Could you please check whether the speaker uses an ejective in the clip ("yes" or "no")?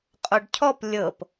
yes